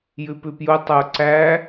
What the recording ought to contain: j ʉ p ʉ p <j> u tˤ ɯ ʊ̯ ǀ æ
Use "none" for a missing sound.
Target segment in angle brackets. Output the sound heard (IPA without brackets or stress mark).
j